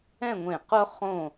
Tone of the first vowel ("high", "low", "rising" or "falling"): falling